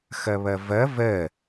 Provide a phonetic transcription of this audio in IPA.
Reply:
x ɐ β ɐ v ɐ v ɜ

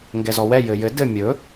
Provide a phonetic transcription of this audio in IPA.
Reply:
ŋ ɡ ɛ z ɔ w ɛ j ɘ j ɘ d ɘ mʲ ɵ

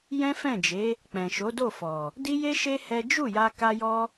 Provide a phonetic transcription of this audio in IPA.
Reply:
j ɛ̃˦ f ɛ̃˦˨ d͡ʒ e˨˦ | k͡p ɛ̃˨ ʃ o˨˦ d o˦˨ f ɔ˨ | d i˦ j e˦ ʃ e˦ h ɛ˦ d͡ʒ u˦˨ j a˧ k a˦ j ɔ˦

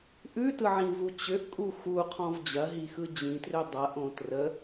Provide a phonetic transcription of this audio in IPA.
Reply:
ʔ ʉ t ɯ ʕ ĩ v u t͡ɕ ʏ ʔ kʼ u x u qʰ ɔ̃ v d͡ʑ ɐ ɦ i x ɯ d͡ʑ ĩ t r ʏ dˤ ɐ ʔ õ t r ə

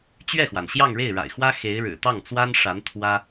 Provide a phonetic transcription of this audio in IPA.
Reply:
t͡ɕ ɥ ɛ˥˩ x w a˩ n ɕ j ɑ˥˧ ŋ ɻ e˥˩ ɪ̯ ɻ a̰˨˩ ɪ̯ x w ä˥ x e˧˥ ɪ̯ ɻ ɻ̩˨˩ t̪ ɑ˥˩ ŋ t͡s w a˥ n ʂ a˧˥ n t̪ʰ w ä˥

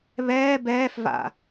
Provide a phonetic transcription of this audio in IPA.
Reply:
β ɛː b ɛː f v a̰

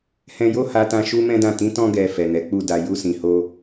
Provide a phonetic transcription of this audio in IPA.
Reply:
h ɛ̃˧ j o˦ h a˧ t ã˧ ʃ u˦ m ɛ̃˦ d ã˦˨ t ĩ˨˦ t ɔ̃˧ ɡ ɛ˨ f ɛ˨ n ɛ˨˦ k͡p u˦˨ d a˧ j u˧ s ĩ˨ h o˧

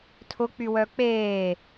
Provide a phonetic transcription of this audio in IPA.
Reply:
tʰ ʊ k͡p y w œ k͡p eː

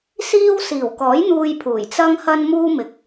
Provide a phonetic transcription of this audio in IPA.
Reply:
s iː˧ w s iː˨˩ w k ɔː˨˥ j n̪ uː˧ j pʰ uː˨˩ j t͡s ɐ˧ ŋ h ɐ˧ n m uː˥ m ɪ˨ k̚

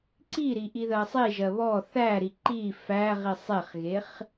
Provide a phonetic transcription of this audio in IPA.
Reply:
ǀ i ɾ i ʔ i ð ɜ sˤ i ʒ ɜ β ɔ θ æ ɾ i ǃ i f æ ʁ i sˤ e χ ɣ e χ

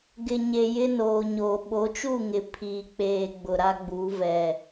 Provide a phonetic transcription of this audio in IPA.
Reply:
ɡ ɪ˨ ɲ e˨ j ɪ˦ n oː˨ ɲ oː˨ ɓ o˨˦ t͡ʃ u˦˨ ŋ ɪ˨ pʰ iː˨ k͡p eː˨ ɡ͡b ʊ˨ ɾ a˦ ɡ͡b u˨˦ v ɛ˨

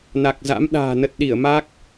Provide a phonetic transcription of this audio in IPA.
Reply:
n a˨˩ k̚ z a̰˧˥ m ɗ a̤ː˨˩ n ə˨˩ t̚ ɗ i˧˩ ə̯ m a˦˥ k̚

